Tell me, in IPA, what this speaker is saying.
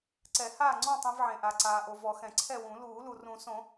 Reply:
ǀ ɛ˨˩˦ h aː˥˨ ŋ͡ǀ ɔ̃˥˨ tˤ ẽ˧ v ʕ ẽ˩ ʔ a˩ ǀ aː˩ ʔ o˩ v ɔ˨˩˦ x ɛ̃˩ ǀʰ ɛ˥˨ w ũ˨˩˦ l uː˨˩˦ l u˩ r ũ˨˩˦ s õ˨˩˦

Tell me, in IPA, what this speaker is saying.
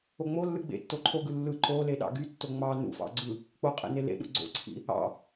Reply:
o ŋ͡m o lː ɯ ɡ͡b ḛ tː o ǃʰ o ɡ ɯ lː ɯ ǃ o l e ɗ ɑ̰ ɡ y tː o ŋ͡m ɑ n ṵ f ɑ̰ ɡ͡ǀ ɯ | k͡p o qʼ ḛ n e l ḛ ɗ ṵ ɡ͡ǀ o̰ ǀʰ ḭ | ɑ̰

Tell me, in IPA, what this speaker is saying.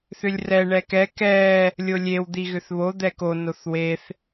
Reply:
θ ʏ lʲ r ɛ ɳ ɛ k ɛ k ɛ | lʲ o lʲ e w d̪ i ɣ ʏ θ β o d̪ ɛ k o n o θ w e θ

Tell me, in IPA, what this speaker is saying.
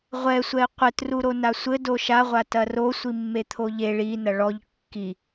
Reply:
ʁʷ ɛ sʷ ɛ ɪ̯ qʷ ɘ t r u ɾ o n a sʷ ɘ d o ʃ a ʁʷ a t ɐ r o sʷ i mː e t̪ʰ o ʎ e ɭ i n ɐ ɭ ɔ ʎ kː i

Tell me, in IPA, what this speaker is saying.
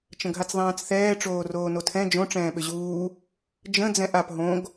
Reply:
t͡ʃ ə̃ ɡʱ a t͡s ðˤ ɛ̃ː t͡s θ ɛː ʈ͡ʂ oː r oː n o tʰ ɛ̃ d͡ʒ õ ʈ͡ʂ ɛ̃ː ɓ ʏ ʑ uː | d͡ʒ ə̃ d͡z ɛ̃ ʔ a p ɦ õ ɡ

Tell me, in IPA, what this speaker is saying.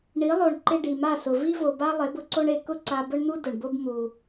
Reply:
ɳ i˩˥ lˠ o˩ ɳ ǃ ɪ˧ ɖ i˩ m a˥˩ s ʊ˩ v i˥ v o˩ b a˥ lˠ e˩˥ b ʊ˧ ǀ o˥ ɳ e˧ k ʊ˥ ǀ a˧ b ʊ˥ ɳ n̪ u˥ d ʊ˩ ɳ b o˥ b m u˩

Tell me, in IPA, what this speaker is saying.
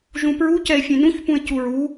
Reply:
ʒ ũ p ɹ u c ɛ e̯ fʲ ẽ n ũ ç p ũ e̯ c u ɹ u

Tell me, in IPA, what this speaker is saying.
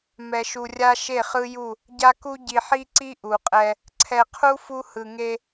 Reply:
m ɛ˨ ʃ u˨ rʲ a˦ ʃ e˦˨ χ ɯ˦ j u˦˨ | ɟ a˦ k u˦ ɟ i˨ ħ i˦ ǀ i˦ ʔ u˨ qʼ ɛ˦ | ǀʰ ɛ˨ qʰ u˦ f u˦ h ɯ˨ ŋ e˦

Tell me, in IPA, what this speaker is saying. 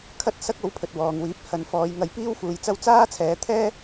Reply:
kʰ ɐ˥ t̚ s ɐ˥ k̚ o˨˥ w pʰ ɵ˨ t̚ w ɔː˨ ŋ w iː˨˥ p̚ h ɐ˨˧ n f ɔː˨˧ j ŋ ɐ˧ j p iː˥ w f uː˨ j t͡s ɐ˥ w t͡s aː˥ t͡sʰ ɛː˨˧ t̪ʰ ɛː˥

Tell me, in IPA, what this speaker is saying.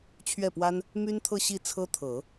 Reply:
t͡ɕʰ ɥ ɛ˥˩ p w a˥ n | m y˥ n t̪ʰ ɤ˥˧ ɕ i˥˩ t͡sʰ ɤ˥ t̪ʰ ɤ˨˩˦

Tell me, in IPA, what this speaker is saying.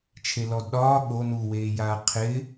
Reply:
t͡ʃʰ e l ɔ d ɗ ɒː ɠ o n u w eː j aː qʰ ɪ

